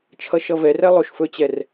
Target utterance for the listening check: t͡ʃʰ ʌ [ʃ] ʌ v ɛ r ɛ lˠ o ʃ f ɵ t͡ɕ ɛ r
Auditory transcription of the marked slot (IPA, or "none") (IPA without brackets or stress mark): ʃ